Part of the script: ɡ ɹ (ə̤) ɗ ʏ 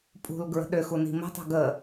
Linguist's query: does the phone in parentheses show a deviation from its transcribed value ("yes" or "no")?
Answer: no